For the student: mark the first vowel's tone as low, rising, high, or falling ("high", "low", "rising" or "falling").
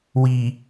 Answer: low